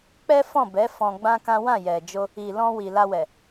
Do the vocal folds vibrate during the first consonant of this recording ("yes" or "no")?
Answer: no